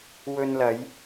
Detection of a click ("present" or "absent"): absent